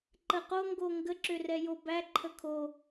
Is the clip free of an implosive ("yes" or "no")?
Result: yes